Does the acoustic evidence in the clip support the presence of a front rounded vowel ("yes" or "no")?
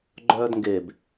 yes